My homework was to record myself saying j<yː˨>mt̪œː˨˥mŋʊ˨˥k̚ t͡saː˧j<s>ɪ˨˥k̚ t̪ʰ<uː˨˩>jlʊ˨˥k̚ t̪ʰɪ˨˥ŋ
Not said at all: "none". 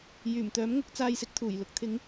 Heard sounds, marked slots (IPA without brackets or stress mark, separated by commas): yː˨˩, s, uː˨˩